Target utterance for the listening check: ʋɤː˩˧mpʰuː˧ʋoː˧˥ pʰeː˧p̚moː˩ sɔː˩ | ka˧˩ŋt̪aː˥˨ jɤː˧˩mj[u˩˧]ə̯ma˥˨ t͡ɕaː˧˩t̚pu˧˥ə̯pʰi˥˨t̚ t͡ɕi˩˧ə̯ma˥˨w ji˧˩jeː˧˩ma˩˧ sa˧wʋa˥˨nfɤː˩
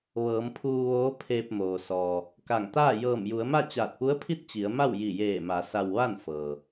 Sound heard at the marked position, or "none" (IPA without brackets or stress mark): u˩˧